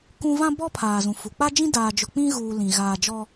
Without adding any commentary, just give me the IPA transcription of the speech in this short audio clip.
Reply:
k ũ˦ v ã˦ b ɔ˦ pʰ aː˨ z ũ˨ f u˨ k͡p a˦ d͡ʒ ĩ˦ d aː˨ d͡ʒ ʊ˨ k͡p ĩ˦ ɣ uː˨ l ĩ˨ ɣ aː˨ d͡ʒ ɔ˦

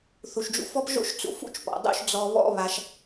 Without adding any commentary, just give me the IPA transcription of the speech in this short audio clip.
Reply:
θ u˩ ʃ d͡ʒ ṵ˧ f ɔ˥ p ʒ o̰˥ ʃ t͡s ṵ˧ f ṵ˥ t͡ʃ p ɔ̰˩ dˤ ṵ˥ ʃ d͡z ɔ˧ β ɔ̰˥ β a˧ ʃ

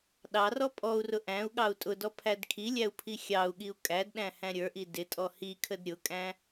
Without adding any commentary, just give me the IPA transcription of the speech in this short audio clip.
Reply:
ɗ ɑ r ɔ pʼ ɔ u̯ r ʊ ʔ æ̃ u̯ ɠ ɑ u̯ tʼ ʊ d ɔ pʰ æ d kʰ i lʲ æ u̯ pʰ i xʲ ɑ u̯ ɠ i u̯ kʼ æ d ɗ æ̃ h æ̃ ɾʲ ə˞ ʔ i d ɪ tʼ ɔ h i kʰ ə d ɾʲ ʊ kʼ æ̃

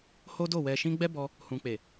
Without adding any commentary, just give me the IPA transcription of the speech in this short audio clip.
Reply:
h o˦ d o˦˨ w ɛ˨ ʃ ĩ˧ ɡ͡b ɛ˦ b ɔ˧ | h ũ˨ k͡p e˨

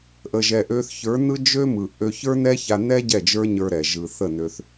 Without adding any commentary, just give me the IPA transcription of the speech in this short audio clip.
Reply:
ʔ ə˧ ʒ ɛ˧ ʔ ø˦ θ ç ə˞˨˦ n ɯ˦ d͡ʒ ø˦ m ɯ˨ ʔ ø˧ ç ə˞˦ n ɛ˦ ç a˧ n ɛ˦ ɟ ɛ˦˨ d͡ʒ ə˞˦ ɲ ə˞˧ ɾ ɛ˨ ʒ ɯ˨ θ ə˦˨ n ø˧ θ

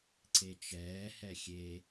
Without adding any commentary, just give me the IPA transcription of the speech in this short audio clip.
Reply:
ǀ e t͡ʃ ɛː h ɛ xʲ e

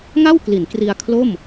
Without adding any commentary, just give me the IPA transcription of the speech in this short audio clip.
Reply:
ŋ a˥˩ w k l i˩˦ n k r i˧ a̯ kʰ l o˥˩ m

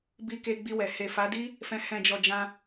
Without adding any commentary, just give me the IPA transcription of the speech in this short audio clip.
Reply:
b i˧ k e˧ ɡ͡b i˧ w ɛ˨ h e˨ f a˨˦ d i˦ | f ɛ̃˨ h ɛ̃˨ d͡ʒ ɔ˨ d͡ʒ ã˧

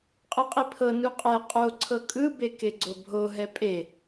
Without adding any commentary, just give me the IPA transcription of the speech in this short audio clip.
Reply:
qʼ ɯ qʼ i pʰ ɤ n u qʼ ɛ qʼ o ǀʰ ɤ kʼ ɯ b e k e ɡ͡ǀ o bʱ o ɦ ɛ pʼ e

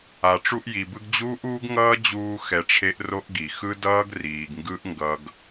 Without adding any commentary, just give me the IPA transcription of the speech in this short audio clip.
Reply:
a˨ ʈ͡ʂ u˧ ʔ j i˨ b ɯ˧ ɡ d͡ʑ uː˦ ʔ uː˦ ɡ ŋ ʌː˦ d͡ʑ uː˧ x ɛ˧ ʈ͡ʂʰ e˦ ʔ r o˦ ʔ ɡ i˨ x ɯ˦ d ʌː˦ ɡ r iː˨ ɡ ŋ ɡ ɯ˦ ʔ ŋ ɡ ʌ˧ ɡ

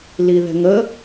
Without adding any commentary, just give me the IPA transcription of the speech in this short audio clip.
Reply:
l i ð ɛ̤ ŋ ə

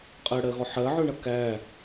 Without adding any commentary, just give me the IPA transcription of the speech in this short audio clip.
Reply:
qʼ ɜ ɽ ɜ ɣ ɔ ħ ɜ ʕ ɵ ɳ ʌ k æ

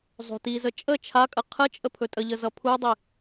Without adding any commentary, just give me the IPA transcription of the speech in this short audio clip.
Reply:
zˤ o̤ t i z ə t͡ʃʼ ə t͡ʃʰ a kʼ ə qʰ ə t͡ʃʼ ə pʰ ɵ tʼ ə ʎ ə z ʌ pʰ u dˤ i

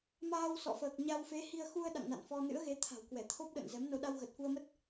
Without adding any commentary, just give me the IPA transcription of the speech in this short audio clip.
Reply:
m aː˧ w s ɔ̰˧˨ f əː˨˩ k̚ ɲ a˧ w f e˨˦ h i˧ ə̯ x u˧ ə̯ ɗ a̰˧˨ ŋ n a̰˧˨ n f ɔ˧ n ɨ̰˧˥ ə̯ ɣ e˨˦ t̪ʰ a̤˨˩ w k w ɛ˧˩ t̪ʰ o˦˥ p̚ ɗ ə̰ː˧˨ n z ɛ˨˦ m n o˧ ɗ a˧ w ɣ ə˨˩ t̚ f u˧ ə̯ m ə˦˥ t̚

